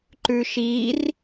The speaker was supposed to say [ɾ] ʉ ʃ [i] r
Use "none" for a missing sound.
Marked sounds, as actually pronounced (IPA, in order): ǃ, i

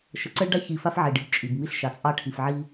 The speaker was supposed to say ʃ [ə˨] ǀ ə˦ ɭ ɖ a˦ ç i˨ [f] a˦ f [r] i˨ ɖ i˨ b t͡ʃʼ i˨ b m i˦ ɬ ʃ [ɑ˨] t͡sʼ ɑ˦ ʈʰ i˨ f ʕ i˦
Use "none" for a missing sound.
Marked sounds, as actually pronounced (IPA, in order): ə˨˦, f, ʕ, ɑ˨

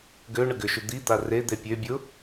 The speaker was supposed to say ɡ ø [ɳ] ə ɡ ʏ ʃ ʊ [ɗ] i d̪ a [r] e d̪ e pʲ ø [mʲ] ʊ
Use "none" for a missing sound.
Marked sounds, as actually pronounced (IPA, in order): ɳ, d̪, r, bʲ

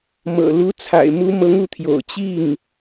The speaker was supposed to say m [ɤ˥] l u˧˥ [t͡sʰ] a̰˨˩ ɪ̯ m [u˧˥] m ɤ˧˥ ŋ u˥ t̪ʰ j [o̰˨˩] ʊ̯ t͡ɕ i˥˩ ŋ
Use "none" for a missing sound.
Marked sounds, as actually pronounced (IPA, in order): ɤ̰˨˩, t͡sʰ, u˧˥, o̰˨˩

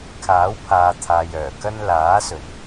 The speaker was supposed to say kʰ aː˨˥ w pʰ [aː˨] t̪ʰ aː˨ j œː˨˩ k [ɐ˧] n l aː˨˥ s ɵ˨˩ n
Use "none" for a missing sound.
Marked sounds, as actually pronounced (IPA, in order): aː˨, ɐ˥

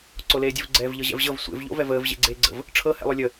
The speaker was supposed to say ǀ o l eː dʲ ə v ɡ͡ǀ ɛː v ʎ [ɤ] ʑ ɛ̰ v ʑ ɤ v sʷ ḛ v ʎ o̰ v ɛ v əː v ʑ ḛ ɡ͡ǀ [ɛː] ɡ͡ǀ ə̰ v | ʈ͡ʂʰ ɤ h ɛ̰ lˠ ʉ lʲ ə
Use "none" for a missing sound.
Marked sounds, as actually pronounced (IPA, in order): ɤ, eː

